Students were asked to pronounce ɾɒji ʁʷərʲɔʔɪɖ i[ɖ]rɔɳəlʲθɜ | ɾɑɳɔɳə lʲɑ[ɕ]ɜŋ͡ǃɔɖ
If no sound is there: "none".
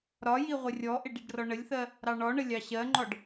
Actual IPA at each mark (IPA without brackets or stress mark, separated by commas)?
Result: ɖ, ɕ